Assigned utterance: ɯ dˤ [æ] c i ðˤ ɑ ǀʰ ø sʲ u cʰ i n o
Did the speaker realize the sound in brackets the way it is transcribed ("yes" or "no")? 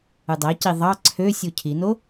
yes